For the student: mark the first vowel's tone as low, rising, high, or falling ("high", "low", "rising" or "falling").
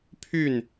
falling